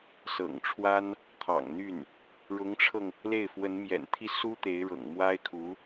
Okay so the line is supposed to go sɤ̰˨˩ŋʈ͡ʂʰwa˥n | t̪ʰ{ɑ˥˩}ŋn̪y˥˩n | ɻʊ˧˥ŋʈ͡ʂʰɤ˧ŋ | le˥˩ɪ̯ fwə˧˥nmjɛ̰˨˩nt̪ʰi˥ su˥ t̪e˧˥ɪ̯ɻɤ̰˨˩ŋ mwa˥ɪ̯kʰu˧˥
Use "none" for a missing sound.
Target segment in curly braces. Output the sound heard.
ɑ̰˨˩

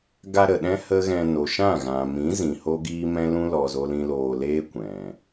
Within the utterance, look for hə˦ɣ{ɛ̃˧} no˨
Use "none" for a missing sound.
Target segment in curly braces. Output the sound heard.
ɛ̃˧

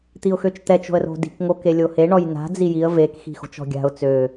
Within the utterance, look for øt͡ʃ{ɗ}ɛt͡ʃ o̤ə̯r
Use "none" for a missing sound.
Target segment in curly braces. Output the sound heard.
t̪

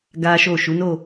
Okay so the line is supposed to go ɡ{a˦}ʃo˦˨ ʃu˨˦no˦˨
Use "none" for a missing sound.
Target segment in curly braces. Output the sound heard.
a˦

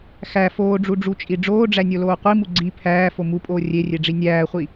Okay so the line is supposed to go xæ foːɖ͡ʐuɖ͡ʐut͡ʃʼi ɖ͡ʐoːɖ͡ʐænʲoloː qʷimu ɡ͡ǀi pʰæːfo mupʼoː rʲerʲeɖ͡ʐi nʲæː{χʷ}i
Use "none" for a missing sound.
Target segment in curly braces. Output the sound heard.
χʷ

